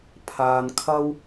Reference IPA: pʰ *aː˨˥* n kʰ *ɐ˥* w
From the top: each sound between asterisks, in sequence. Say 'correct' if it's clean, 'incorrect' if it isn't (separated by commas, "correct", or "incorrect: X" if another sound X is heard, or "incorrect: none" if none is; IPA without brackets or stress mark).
incorrect: aː˨, correct